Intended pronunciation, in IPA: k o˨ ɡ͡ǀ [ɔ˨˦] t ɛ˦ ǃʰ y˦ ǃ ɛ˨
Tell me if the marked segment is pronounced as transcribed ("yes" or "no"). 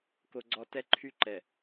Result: no